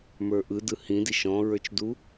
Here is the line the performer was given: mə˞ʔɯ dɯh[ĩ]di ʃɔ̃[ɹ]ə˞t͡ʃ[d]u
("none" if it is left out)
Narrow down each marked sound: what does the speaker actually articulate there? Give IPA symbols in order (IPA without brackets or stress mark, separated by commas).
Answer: ĩ, ɹ, d